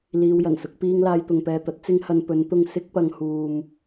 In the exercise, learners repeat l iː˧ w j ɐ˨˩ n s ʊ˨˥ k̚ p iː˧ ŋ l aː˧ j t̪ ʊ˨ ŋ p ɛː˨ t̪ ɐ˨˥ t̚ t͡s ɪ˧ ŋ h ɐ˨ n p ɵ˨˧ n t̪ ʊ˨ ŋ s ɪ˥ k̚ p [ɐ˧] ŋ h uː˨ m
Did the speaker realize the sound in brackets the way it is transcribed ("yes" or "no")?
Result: yes